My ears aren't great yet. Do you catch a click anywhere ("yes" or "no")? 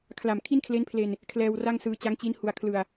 no